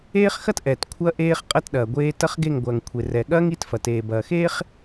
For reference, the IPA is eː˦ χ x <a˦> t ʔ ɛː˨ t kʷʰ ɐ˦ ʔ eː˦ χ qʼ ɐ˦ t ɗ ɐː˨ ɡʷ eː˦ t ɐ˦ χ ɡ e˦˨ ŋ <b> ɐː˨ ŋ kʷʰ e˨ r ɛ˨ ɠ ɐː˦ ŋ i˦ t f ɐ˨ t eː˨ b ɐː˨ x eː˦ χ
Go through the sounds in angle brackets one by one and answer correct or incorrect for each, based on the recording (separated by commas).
incorrect, incorrect